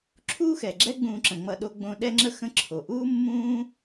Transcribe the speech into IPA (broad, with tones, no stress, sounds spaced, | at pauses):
ǁʰ uː˥ x ɛ˩ ɡ͡ǁ ɛ˦ ɡ͡b ũː˨ ǁ ə̃˩ ŋ͡m ʌ˨ ɗ o˨ ɡ͡b õ˨ ɗ ɛ˥ ŋ͡ǁ ə˥ x ə̃˦ ǁʰ o˩ ʔ uː˥ mː ũː˦